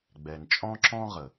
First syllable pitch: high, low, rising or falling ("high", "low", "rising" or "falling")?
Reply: low